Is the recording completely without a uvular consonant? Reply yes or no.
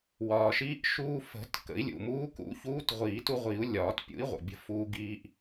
no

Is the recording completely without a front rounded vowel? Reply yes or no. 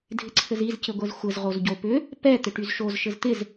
no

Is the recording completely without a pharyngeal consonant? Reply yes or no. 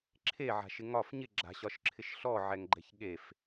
no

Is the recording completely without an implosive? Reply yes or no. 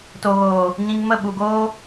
no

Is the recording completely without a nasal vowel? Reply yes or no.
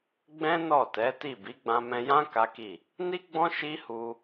no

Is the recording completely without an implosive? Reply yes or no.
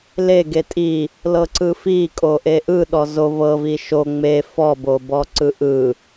no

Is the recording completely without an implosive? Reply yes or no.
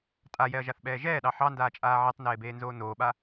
no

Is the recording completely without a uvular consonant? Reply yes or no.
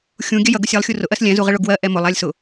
no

